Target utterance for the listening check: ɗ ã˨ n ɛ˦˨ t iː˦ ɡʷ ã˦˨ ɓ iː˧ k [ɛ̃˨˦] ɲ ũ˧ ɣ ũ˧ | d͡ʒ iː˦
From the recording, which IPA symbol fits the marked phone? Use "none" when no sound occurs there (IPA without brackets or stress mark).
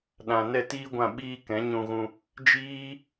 ɛ̃˨˦